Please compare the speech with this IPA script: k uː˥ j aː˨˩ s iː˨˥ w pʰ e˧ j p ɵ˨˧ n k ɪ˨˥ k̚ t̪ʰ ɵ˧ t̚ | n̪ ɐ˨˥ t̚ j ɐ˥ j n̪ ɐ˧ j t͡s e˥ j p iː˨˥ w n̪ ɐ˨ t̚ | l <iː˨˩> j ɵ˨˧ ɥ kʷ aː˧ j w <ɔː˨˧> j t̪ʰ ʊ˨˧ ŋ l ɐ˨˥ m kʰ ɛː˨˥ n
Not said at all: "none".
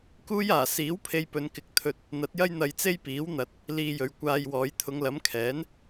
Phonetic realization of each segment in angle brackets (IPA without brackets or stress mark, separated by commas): iː˧, ɔː˨˧